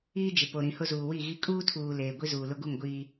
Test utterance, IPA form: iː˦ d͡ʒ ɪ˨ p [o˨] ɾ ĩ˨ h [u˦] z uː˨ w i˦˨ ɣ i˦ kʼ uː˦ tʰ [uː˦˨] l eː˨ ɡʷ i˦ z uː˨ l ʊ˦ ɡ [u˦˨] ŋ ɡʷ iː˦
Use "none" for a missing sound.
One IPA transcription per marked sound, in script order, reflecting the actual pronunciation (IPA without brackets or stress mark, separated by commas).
o˨, ʊ˦, uː˨, u˦˨